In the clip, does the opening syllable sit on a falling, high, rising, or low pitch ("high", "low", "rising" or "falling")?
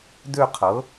falling